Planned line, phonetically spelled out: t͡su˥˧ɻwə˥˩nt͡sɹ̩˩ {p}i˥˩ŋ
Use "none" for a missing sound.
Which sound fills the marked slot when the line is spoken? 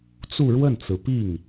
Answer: p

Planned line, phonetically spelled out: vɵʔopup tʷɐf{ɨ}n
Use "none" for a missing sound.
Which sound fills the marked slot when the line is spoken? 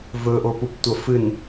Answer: ɨ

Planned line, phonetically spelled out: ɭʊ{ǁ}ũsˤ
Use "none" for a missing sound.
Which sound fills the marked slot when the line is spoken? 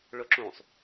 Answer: ǁ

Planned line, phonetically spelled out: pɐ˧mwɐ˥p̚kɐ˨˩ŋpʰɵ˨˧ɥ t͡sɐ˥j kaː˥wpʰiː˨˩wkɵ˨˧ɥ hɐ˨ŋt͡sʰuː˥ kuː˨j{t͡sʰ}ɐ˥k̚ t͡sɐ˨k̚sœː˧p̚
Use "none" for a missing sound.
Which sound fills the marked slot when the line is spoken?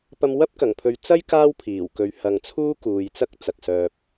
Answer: t͡s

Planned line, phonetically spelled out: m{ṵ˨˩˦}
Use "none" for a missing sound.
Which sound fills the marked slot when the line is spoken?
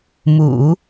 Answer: ṵ˨˩˦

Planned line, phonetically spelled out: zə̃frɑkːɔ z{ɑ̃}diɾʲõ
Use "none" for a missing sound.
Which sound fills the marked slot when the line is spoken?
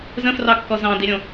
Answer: ɑ̃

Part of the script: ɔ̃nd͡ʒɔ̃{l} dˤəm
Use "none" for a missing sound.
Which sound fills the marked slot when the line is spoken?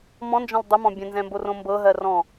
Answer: l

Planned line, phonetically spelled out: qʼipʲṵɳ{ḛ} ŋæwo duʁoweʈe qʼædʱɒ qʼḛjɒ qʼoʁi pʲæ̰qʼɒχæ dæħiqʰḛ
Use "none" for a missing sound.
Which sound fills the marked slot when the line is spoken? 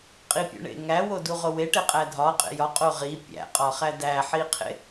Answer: ḛ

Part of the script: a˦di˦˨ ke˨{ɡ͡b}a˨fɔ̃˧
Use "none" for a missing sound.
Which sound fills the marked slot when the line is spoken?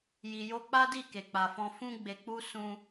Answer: k͡p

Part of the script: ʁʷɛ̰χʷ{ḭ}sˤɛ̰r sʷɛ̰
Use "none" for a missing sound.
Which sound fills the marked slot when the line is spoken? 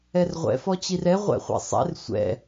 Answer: ḭ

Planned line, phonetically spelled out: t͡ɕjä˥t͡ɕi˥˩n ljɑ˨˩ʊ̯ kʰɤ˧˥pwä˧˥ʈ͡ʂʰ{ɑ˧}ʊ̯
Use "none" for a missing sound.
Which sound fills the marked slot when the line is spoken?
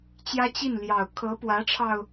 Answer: ɑ˧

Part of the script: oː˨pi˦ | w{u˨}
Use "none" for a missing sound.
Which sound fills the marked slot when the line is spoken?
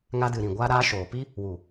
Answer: u˨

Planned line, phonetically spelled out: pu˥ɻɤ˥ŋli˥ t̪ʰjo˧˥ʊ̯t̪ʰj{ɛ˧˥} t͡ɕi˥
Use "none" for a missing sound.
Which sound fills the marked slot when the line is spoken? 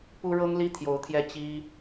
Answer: ɛ˥˩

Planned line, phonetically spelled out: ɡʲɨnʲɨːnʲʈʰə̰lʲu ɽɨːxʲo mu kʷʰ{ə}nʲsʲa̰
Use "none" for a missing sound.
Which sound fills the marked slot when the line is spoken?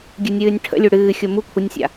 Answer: ə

